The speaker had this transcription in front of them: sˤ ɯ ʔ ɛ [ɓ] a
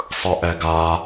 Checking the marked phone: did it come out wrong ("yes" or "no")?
yes